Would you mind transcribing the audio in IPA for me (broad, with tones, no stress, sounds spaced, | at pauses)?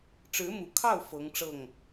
ʈ͡ʂ ɻ̩˧˥ m u˨˩ kʰ ɑ˥˩ ʊ̯ f ɤ˧˥ ŋ ʈ͡ʂ ɤ˥˩ ŋ